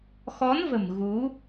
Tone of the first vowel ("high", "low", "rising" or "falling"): rising